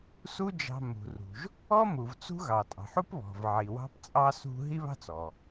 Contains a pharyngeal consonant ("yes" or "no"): yes